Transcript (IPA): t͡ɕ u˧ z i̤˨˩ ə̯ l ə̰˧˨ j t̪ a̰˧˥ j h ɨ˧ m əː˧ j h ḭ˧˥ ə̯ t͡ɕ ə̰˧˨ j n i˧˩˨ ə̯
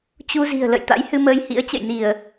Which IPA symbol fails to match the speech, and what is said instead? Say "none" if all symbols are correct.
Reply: none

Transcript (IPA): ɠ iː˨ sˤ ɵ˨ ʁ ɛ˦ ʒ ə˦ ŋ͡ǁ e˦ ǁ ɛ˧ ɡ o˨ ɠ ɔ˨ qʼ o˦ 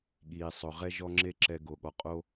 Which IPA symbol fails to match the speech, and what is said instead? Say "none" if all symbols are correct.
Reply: ə˦ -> ɔ˦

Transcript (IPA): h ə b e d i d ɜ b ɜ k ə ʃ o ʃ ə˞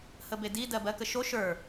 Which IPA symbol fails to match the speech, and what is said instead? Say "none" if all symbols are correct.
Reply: none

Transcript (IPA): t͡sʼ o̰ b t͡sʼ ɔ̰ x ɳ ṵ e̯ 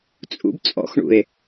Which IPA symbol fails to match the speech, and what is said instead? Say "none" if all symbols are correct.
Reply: o̰ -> ṵ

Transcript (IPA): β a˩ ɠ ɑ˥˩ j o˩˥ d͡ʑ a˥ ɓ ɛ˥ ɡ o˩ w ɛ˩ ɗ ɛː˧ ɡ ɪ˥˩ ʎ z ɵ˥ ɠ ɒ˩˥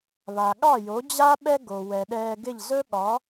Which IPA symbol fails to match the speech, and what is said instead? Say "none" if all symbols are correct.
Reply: none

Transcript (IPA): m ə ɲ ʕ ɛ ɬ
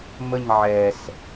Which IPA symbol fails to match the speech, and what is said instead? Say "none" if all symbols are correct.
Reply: ɬ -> s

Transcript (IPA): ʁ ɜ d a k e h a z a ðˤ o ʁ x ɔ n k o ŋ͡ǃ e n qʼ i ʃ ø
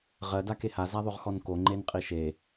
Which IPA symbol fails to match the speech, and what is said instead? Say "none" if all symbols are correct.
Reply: ø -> e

